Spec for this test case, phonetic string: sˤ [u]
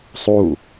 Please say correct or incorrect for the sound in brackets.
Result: correct